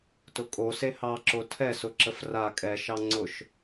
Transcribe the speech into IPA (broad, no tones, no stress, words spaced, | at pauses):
tʊkʼo sehɑǁo tʰɛsʊǁəf ra kʼɛʃɑ ŋ͡ǀʊʃ